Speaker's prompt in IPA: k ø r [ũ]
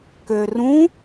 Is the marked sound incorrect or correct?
correct